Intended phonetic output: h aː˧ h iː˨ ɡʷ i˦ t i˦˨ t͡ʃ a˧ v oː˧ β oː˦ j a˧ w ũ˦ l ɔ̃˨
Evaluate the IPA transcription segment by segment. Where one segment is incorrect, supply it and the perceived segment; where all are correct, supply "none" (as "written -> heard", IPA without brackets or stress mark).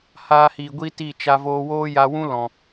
β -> w